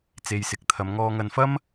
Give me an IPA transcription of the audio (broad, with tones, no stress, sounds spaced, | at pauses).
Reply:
t͡s e˧ j s ɪ˧ k̚ t̪ʰ ɐ˨˧ m ŋ ɔː˧ ŋ ɐ˧ n f ɐ˥ m